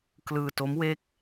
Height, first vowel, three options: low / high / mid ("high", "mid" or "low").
high